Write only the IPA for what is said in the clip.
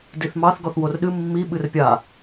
diθmɑθ ɡɔθworɗɨ mːi ɓɨrpʲa

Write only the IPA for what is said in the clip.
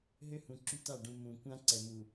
ɦø˦hũ˨ ǁy˦ta˦˨ɖũ˨ mũ˨ kʷã˦ǀɛ˨mu˨

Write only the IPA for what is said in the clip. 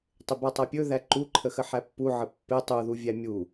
tˤɪbatˤapʲɵ ðæǃuǃʰə xəħæpːu ʕəpːɪ tˤuðu vʲæmʲu

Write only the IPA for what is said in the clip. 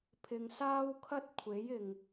pʰɪ˧ŋsaː˥wkʰɐ˥t̚ kʷʰe˨˥jɪ˨ŋ

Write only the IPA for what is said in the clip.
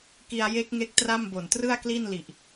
ki˧a̯je˦˥k̚ŋe˦˥k̚ tra˥˩mbo˨˩n trɯ˥˩a̯kli˥˩n li˨˩ʔ

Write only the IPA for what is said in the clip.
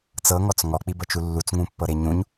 t͡sɤŋɔt͡s ŋɔk͡pibɤt͡ʃu lːut͡sŋũpːɤɾe ɲũɲ

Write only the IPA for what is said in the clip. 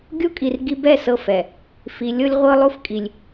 ɡʲo˦kʼi˨rɡi˦ bɛ˦˨ sɤ˦˨fɛ˨ | fi˨lʲɤ˦lʲ ʁʷɤ˦lˠo˦fkʼi˨lʲ

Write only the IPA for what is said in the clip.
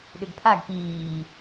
ɗʏɡpʰaɡ piː

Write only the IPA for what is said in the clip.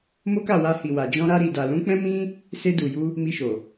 mo˦ka˦˨wa˧hi˨ wa˨d͡ʒɔ̃˧ɾa˧ ɾi˨da˨lũ˨˦ k͡pɛ̃˦mĩ˦ | se˧du˨ju˧ | mi˧ʃo˨

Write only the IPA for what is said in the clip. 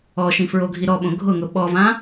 ɔʃĩ fɹoɡʱiɾɔɓõ ɡʱʊŋʊ ɓɔvã

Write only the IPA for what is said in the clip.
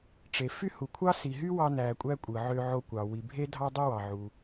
ʈ͡ʂe˩ fy˥hu˩kʷʰɑ˥ si˩ɦy˥ wɑ˧næ˩kʷʼæ˧ kʷʼɯ˩ʕø˧ʕo˧kʷɑ˩ wi˩bʱe˥ dʱɑ˥dˤi˥ wɑ˩ʕu˩

